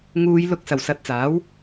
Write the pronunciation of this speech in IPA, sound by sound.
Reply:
ŋuː˨˧j lʊ˨˥k̚ sɐ˨˩wsɐ˨˥t̚t͡saː˨˥w

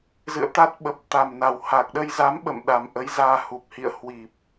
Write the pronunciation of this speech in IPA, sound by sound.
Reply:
zɨ̰˧˨ə̯t̪a˦˥t̚ ɓə˨˩p̚ t̪a˨˩mna˨˩w ha˨˩k̚ɗə˧jza˨˦m ɓə̰˧˨m ɗa˨˩mʔə˨˦j zaː˧hu˨˩p̚hḭ˧˨ə̯ hwi˨˩p̚

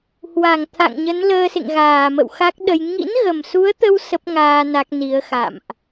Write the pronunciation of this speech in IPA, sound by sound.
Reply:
hwa˧˩ŋt̪ʰa̰˧˨ŋɲə˨˦n ləː˧sḛ˧˨ŋɣaː˧˩mə̰˧˨w xa˦˥k̚ɗə˧j ŋḭ˧˥nɣə˨˩msu˨˦ə̯t̪ə˧w sə˦˥p̚ŋaː˧ na˦˥k̚ni˨˦ə̯xa̰˧˨mʔ

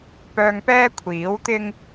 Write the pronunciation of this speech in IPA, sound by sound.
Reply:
pœː˧ŋpɛː˥kʷʰiː˨˥wt̪ɪ˥ŋ

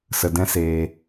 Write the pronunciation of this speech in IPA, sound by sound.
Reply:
sə˧dɛ̃˦seː˧

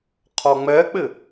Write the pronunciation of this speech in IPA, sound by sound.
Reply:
qʰɔŋ͡mɛk͡pɪ

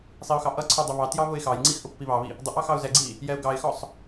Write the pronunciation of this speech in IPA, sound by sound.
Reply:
sˤiʊ̯xɑʔʌǀʰə˞ dˤʊβɑtjɑ βʊɪ̯xɑjŋ͡ǀix ʔʊpːiβɑβi | dˤʊʔɑ xɑʊ̯zɛɡ͡ǀi | jɛʊ̯ɡɑɪ̯xɔsˤ

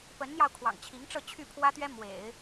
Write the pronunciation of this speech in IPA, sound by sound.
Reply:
pə˧˥nn̪jɑ˧ʊ̯ kʰwɑ̰˨˩ŋt͡ɕʰi˧˥ŋʈ͡ʂɤ˥˧ t͡ɕʰy˥˩pʰwä˥t̪ɥɛ˥ mwḛ˨˩˦ɪ̯

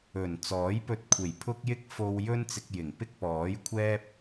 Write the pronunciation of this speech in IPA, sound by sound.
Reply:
ɵ˨˩n t͡sɔː˨˥jpɵ˧t̚kʷʰe˨˩j pʰʊ˥k̚jɪ˥k̚ fo˧w jɵ˥nt͡sɪ˧k̚jɪ˨˩ŋ pɪ˥k̚pɔː˨˥jkʷʰɛː˥p̚

